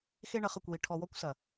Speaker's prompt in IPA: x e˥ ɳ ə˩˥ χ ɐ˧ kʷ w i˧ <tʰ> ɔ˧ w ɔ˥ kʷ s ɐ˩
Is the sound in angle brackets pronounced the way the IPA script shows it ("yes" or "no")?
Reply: no